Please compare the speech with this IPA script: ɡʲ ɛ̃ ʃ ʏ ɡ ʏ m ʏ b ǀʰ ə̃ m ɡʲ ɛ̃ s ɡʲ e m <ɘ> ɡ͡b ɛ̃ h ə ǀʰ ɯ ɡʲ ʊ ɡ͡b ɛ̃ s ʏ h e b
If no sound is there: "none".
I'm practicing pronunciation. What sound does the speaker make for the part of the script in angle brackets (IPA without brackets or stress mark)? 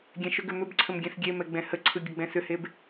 ɛ